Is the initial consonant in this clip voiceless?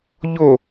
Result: no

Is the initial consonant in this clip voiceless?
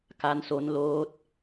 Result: yes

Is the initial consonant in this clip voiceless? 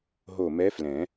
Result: no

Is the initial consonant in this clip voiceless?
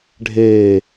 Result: no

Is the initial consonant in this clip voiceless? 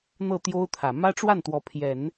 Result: no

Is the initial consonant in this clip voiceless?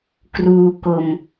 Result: yes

